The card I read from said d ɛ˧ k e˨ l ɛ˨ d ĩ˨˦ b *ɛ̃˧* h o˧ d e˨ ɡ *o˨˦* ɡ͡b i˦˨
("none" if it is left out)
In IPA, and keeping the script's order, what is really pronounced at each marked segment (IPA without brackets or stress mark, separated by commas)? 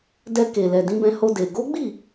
ɛ̃˧, o˨˦